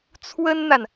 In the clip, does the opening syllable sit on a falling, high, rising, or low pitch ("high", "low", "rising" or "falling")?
high